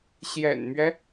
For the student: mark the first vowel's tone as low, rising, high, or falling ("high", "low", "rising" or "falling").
low